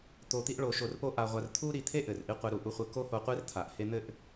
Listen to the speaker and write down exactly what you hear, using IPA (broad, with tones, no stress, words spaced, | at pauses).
t̪o˧t̪i˥ʔ ɭo˧ ʃo˧rpo˥ ʔa˧ʁʷa˧r t̪ʰu˥ɾi˧ t̪ʰe˥ʔɘ˩r ʔi˥qʷe˧ɾu˧ ʔu˧χʷɘ˧ ko˥ho˧qʷe˥rt̪ʰa˩ʔ he˥ n̪ɘ˥ʔ